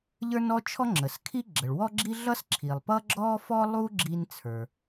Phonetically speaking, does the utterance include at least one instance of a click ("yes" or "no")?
yes